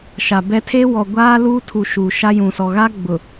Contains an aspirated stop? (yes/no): yes